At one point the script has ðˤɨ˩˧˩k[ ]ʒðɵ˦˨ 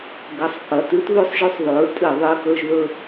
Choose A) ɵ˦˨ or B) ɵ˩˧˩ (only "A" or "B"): A